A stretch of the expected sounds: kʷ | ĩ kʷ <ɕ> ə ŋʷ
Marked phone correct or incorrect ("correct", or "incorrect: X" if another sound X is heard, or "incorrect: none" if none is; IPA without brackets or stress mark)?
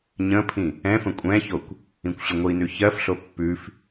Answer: correct